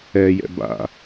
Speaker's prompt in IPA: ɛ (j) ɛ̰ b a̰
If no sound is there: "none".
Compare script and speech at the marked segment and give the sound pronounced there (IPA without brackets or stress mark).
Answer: j